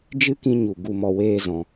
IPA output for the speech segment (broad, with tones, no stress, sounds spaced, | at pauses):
d͡ʒ ɨ˦ k ĩ˧ ɲ u˨ ɡ u˧ m ɔ˧ w eː˦ z ɔ̃˧